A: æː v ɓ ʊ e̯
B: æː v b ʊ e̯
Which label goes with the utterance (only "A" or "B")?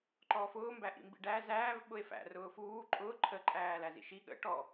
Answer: A